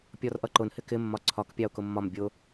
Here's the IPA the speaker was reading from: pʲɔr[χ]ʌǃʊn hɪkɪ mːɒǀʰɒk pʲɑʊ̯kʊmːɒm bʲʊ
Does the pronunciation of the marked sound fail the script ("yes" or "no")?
yes